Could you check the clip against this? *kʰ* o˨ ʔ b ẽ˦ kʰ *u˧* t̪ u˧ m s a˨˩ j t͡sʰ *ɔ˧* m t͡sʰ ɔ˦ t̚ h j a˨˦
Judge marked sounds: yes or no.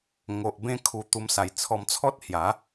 no, yes, yes

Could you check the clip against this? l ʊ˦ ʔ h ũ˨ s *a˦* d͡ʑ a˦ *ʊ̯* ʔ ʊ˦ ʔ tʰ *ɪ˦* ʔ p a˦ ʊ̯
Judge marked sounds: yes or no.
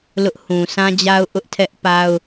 no, yes, no

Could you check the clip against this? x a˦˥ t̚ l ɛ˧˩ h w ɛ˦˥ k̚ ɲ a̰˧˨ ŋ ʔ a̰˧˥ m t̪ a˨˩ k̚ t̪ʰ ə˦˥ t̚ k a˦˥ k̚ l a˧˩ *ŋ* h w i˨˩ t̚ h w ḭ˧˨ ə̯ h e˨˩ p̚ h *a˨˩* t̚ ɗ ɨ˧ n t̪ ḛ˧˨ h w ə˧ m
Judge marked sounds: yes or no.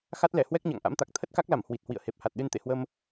no, yes

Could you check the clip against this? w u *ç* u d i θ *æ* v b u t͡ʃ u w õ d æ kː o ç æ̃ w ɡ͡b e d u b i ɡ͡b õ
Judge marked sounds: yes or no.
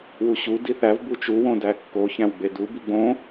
no, yes

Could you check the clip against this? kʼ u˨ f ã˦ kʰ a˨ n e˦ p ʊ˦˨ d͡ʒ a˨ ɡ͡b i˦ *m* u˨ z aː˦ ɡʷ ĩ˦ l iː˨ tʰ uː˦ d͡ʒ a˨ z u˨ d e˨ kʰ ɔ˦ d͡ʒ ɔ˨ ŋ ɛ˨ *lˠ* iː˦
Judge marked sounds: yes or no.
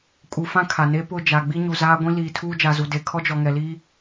no, no

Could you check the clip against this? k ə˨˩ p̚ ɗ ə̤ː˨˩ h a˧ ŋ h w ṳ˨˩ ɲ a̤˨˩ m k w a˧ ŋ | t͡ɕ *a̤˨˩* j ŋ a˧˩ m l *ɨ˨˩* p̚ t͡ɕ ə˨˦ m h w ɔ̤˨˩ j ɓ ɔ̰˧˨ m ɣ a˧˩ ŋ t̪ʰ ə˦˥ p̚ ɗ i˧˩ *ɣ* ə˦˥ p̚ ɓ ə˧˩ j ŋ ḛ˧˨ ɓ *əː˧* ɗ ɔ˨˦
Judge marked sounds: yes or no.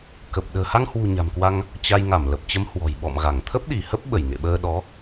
no, no, no, yes

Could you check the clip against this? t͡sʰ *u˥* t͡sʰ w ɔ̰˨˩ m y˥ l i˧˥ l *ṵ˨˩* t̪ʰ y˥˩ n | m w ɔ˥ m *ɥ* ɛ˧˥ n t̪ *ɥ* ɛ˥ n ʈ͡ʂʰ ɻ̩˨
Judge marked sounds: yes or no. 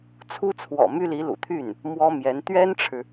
yes, yes, no, yes

